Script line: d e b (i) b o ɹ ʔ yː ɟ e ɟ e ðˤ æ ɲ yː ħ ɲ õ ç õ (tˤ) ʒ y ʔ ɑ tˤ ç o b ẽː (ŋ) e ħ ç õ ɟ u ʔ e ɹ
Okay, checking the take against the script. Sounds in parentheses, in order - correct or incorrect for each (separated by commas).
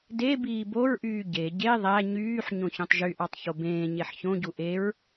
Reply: incorrect, correct, incorrect